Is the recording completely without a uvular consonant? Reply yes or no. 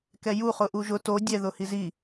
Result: no